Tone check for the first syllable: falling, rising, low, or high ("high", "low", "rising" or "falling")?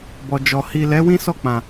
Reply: low